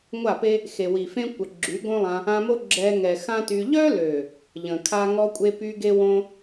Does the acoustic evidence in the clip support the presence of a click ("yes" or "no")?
yes